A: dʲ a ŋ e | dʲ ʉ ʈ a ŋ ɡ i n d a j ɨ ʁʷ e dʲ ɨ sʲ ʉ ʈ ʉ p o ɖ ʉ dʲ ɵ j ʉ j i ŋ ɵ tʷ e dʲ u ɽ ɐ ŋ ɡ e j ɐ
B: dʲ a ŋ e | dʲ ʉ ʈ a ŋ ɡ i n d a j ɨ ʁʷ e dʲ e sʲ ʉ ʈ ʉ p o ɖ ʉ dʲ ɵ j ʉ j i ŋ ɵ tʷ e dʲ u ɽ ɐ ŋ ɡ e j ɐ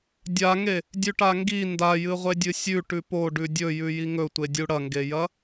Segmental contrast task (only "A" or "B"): A